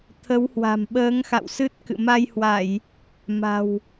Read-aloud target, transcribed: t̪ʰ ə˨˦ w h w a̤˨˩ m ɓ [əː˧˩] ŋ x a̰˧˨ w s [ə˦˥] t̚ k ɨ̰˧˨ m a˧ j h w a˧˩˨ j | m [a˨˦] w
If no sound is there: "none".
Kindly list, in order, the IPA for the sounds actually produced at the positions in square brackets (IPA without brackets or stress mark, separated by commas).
əː˨˦, ɨ˦˥, a̤˨˩